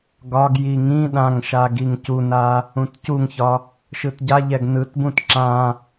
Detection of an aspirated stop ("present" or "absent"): absent